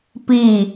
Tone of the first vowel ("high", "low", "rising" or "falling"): falling